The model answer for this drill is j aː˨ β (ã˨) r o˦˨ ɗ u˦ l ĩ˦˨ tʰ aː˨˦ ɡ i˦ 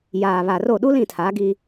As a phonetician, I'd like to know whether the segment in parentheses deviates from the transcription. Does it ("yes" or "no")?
yes